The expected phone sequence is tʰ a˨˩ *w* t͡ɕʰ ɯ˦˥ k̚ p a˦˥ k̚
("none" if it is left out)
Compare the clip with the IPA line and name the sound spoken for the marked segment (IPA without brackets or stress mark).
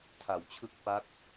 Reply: w